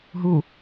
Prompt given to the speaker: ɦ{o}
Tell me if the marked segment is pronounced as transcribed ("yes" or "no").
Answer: no